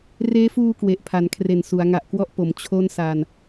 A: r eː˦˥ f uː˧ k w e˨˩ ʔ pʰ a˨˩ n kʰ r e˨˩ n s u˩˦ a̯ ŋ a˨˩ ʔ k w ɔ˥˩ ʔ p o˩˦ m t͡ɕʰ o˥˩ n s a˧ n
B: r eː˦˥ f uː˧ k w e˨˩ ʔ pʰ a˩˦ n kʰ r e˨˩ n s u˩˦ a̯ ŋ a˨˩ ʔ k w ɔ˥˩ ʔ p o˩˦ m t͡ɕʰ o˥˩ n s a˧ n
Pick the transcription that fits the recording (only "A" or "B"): B